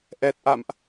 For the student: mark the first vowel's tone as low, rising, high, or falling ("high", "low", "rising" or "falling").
low